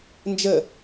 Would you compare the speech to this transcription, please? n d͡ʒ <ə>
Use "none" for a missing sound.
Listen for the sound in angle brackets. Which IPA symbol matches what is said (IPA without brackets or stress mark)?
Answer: ə